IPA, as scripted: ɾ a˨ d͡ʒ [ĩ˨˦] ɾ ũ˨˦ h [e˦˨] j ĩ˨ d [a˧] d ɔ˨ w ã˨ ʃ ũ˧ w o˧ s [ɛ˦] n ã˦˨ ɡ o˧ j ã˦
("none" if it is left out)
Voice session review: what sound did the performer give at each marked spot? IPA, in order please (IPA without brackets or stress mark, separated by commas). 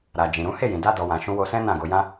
ĩ˨, e˦˨, a˧, ɛ̃˦